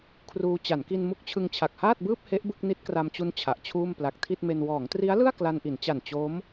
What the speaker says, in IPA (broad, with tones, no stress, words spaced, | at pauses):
kʰruː˧ t͡ɕa˩˦nki˧n mu˦˥k̚t͡ɕʰɯ˧ŋ t͡ɕʰa˨˩k̚haː˥˩t̚ bɯː˥˩p̚ he˦˥ʔ bɯ˥˩k̚ni˦˥t̚kra˧mt͡ɕu˦˥n t͡ɕʰa˨˩ʔt͡ɕʰuː˥˩m pla˨˩k̚tʰi˥˩t̚me˧n wɔː˩˦ŋtri˦˥a̯lɯ˥˩a̯ kla˧nʔi˩˦n t͡ɕa˨˩n t͡ɕo˦˥m